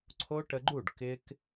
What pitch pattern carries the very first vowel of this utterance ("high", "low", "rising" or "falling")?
high